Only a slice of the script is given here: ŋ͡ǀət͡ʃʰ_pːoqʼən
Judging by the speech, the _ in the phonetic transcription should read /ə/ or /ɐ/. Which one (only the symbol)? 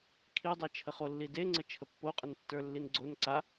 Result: ə